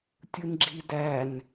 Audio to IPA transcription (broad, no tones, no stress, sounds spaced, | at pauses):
tʲ ɯ n ɡ͡ǁ i d æ n